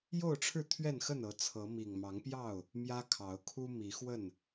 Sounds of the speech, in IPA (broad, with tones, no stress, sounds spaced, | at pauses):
j o˥˨ ʊ̯ ʈ͡ʂʰ ɻ̩˥˨ t̪ʰ ɥ ɛ˥˨ n x ə˥˨ n ɤ˨˦ t͡sʰ ɤ˨˦ m i˨˩ ŋ m ɑ˨˦ ŋ p j ɑ˥˨ ʊ̯ | m j ä˦ kʰ ɑ˨˦ ʊ̯ kʰ u˦ m i˨˦ x w ə˥˨ n